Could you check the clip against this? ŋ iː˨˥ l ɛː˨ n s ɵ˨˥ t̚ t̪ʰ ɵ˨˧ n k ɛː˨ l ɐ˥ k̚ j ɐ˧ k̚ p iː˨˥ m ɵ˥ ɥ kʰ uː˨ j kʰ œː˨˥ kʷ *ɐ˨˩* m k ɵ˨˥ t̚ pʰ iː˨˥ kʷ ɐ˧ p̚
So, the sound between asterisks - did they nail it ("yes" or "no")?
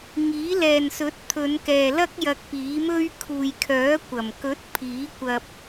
yes